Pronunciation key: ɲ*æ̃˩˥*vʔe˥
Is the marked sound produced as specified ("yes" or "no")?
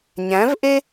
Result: yes